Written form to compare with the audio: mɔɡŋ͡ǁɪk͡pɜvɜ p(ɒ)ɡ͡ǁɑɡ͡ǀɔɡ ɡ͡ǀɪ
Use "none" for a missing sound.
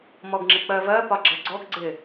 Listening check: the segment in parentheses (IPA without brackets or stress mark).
ɒ